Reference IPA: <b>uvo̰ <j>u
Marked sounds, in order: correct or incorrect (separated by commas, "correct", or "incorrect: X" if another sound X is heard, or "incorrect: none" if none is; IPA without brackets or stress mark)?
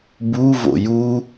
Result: correct, correct